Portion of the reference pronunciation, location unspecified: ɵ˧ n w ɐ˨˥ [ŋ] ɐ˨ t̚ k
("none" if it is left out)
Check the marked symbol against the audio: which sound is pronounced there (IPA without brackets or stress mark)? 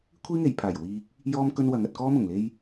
ŋ